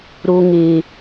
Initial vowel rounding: rounded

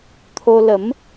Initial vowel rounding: rounded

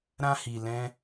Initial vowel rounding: unrounded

